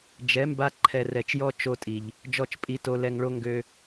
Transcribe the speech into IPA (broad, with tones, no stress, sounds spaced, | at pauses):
d͡ʒ ɛ˨˦ m b a˧ ǃʰ ɛ˨ r ɛ˨ t͡ʃ j ɔ˧ t͡ʃ o˦ tʼ i˨ ʎ | d͡ʒ ɔ˦˨ t͡ʃ pʼ i˧ t o˧ l ɛ˧ ŋ ɭ o˦ ŋ ɡ ø˦